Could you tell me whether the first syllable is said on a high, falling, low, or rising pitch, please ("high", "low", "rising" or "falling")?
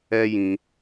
high